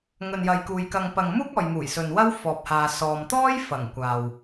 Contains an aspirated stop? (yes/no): no